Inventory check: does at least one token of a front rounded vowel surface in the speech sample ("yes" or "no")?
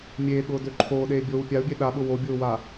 yes